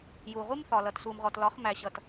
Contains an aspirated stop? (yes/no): no